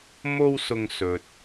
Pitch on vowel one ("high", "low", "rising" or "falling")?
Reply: high